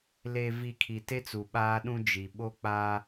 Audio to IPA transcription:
l e˨ v i˨ kʰ i˨ t e˦ t͡s u˨ ɓ aː˦ ɗ ũ˦ d͡ʒ i˨ ɓ o˦ k͡p aː˦

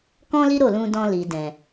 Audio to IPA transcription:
k ɔ̃˦ l i˦ ɾ o˦˨ l ũ˧ d ɔ̃˧ l i˨ d ɛ̃˨

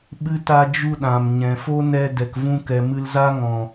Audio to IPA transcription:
ɓ ɨ˦ t a˦ d͡ʒ u˦ ɗ ã˨ m ɲ ɛ̃˨ f o˦ n ɛ˧ d ɛ˨ k v ũ˧ k ɛ˨ m ɨ˧ l z a˦ ŋ ɔ̃˨

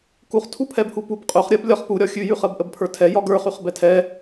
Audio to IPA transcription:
k u χ tʰ u pʰ ɛ b h u p u b qʼ ʉ χ ɾʲ ɜ b lʲ ɒ χ p u ɾʲ ɒ xʲ ʉ j ʉ χ ɜ b ʔ ə b pʰ ə˞ tʰ ɛ j ɒ ɡ ə˞ χ ʉ χ b ɛ tʰ ɛ

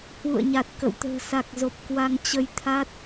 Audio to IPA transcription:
h w ṵ˧˨ ə̯ ɲ a˨˩ t̚ k ə̰˧˨ w t̪ ə̤ː˨˩ s a˨˩ k̚ z o˨˩ p̚ k w a˧ ŋ t͡ɕ ə˧ j t̪ʰ a˦˥ t̚

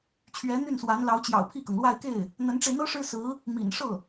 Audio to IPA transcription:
t͡ɕʰ ɥ ɛ˧˥ n̪ y˥˩ n s w a˧˥ n l ɑ˧˥ ʊ̯ t͡ɕ j ɑ̰˨˩ ʊ̯ pʰ i˥˩ k ɤ˩ ŋ l w a˥˧ ɪ̯ k e˥˩ ɪ̯ | n̪ ə˧˥ n ʈ͡ʂ e˧ ɪ̯ n̪ ɤ˥ ʂ ɻ̩˥ s ɹ̩˧˥ | m ḭ˨˩ n ʂ ɤ˥˩

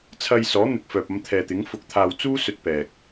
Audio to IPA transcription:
t͡sʰ ɐ˧ j s ɔː˨˥ n̪ ɪ˨ k̚ f œː˨ p̚ ɐ˧ m t̪ʰ ɛː˨ t̪ ɪ˨˥ ŋ f ʊ˧ k̚ t̪ʰ aː˧ w t͡s uː˥ s ɵ˧ t̚ p ɛː˨ k̚

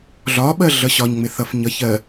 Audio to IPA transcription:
ɮ ɒ ɓ ɜ ɮ ʌ ɕ ɒ ɲ ŋ͡m ɪ θ ʌ f ɲ ʌ ç ɜ

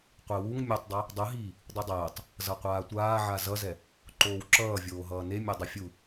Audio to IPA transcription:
qʷ e w u ŋ mʲ o tˤ dˤ ɛ | dˤ ɯ ɦ iː | dˤ u dˤ ɛː tˤ | z ʌ qʷ aː tʷ aː ʕ a z ʌ z ɛ | ǃ oː w ǁ ʌː vʲ oː ɦ ʌː n e mʲ e dˤ i fʲ u

